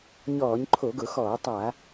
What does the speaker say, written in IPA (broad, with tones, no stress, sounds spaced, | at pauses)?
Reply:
ɲ ɔː˧˩˧ ɲ ǃʰ o˧˩˧ ɡ ʊ˧˩˧ x ɔː˧˩˧ tˤ a˧˩˧